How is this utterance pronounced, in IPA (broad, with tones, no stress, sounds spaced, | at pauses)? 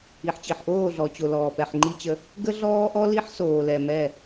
i˨ ħ t͡ɕ i˨ ħ ʔ oː˦˨ ɮ ɔ˨ t͡ɕ o˨ l ɔː˨ p ɛ˨ ħ ŋ͡ǃ i˦ t͡ɕ ə˦ | ɡ ə˦ ɮ ɔː˦ ʔ ɔ˦ l i˦ ħ s oː˨ l ɛ˨ m ɛ˦˨